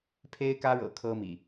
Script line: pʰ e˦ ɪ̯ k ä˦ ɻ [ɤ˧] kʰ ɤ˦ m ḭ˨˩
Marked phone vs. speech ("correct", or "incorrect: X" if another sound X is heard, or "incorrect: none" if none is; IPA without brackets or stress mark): incorrect: ɤ̰˨˩